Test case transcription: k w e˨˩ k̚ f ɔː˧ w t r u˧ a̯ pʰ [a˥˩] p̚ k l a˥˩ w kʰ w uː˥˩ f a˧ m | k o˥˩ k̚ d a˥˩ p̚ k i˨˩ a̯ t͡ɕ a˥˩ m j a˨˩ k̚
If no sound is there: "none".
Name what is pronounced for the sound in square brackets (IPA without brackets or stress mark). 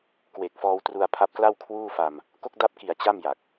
a˦˥